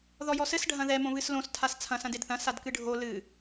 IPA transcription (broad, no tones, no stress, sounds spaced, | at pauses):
ð ɔ j ɔ s ɘ s ɖʱ ɐ̃ ð ɛ m õ β ɨ s l õ s tʰ a s t͡sʰ ɐ̃ s ɐ̃ d e d θ ɐ̃ s a d k ɨ ɖʱ o l ɨ